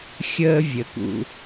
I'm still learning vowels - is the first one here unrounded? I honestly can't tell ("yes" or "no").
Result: yes